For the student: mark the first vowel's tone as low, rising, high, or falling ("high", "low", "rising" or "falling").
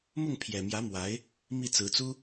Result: falling